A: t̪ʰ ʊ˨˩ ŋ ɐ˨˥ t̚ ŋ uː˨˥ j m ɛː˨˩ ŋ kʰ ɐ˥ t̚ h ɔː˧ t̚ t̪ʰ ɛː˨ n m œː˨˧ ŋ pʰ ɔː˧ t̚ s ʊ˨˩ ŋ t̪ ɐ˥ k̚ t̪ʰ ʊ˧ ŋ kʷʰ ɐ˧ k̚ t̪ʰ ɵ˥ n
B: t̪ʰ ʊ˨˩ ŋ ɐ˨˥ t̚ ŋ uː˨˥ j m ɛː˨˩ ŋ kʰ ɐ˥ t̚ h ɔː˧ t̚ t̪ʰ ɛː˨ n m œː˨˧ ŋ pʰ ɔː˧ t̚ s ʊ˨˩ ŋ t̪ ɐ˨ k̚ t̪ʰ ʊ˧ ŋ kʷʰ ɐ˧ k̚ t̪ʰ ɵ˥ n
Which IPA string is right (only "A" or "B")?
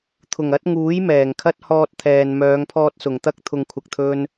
A